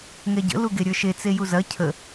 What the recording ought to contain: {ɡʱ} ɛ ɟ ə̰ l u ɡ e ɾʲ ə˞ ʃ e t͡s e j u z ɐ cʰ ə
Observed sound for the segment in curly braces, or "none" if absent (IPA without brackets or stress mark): ŋ